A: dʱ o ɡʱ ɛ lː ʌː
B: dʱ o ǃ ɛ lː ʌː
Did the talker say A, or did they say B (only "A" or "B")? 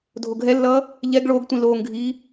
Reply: A